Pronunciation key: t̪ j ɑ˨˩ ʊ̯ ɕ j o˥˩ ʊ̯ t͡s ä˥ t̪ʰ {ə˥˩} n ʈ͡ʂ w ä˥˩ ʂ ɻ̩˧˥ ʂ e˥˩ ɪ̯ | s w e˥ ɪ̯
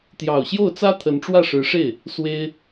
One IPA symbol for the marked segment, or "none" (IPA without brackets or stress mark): ə˧˥